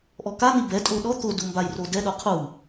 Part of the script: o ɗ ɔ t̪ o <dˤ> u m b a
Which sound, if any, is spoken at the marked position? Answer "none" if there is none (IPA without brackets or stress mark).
d